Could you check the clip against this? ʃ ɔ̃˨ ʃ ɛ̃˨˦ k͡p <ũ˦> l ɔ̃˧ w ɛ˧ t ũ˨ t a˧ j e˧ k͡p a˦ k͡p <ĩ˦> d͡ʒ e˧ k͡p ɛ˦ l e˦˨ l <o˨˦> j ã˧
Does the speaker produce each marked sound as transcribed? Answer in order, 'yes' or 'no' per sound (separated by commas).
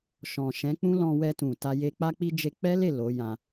yes, no, yes